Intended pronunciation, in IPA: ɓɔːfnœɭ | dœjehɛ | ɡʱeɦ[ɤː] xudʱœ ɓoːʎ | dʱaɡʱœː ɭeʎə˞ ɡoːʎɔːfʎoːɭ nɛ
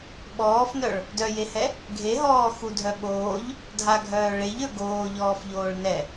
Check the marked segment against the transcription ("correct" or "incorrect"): incorrect